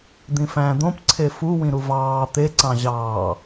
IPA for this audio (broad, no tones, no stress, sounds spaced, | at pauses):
d̪ ĩ f æ̃ d̪ õ p ǀʰ e f u w ĩ ɾ u v ɑː t̪ e ǀ ɑ̃ ʑ ɑː